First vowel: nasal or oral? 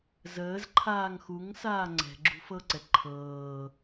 oral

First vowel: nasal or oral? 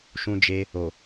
nasal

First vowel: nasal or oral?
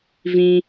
nasal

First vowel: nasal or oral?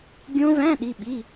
nasal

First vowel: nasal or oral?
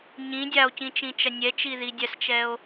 nasal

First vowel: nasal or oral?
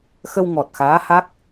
oral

